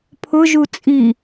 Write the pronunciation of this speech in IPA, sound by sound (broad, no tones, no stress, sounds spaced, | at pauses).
pʰ ʊ ʒ u t͡sʼ i